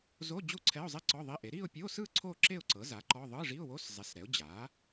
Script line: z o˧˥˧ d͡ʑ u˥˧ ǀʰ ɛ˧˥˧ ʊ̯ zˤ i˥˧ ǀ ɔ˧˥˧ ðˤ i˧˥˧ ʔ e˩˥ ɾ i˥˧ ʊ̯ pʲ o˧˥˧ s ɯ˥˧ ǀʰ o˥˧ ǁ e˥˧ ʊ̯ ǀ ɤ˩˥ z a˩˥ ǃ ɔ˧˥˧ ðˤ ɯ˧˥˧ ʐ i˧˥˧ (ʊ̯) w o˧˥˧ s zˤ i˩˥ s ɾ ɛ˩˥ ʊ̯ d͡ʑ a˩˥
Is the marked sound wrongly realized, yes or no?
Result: no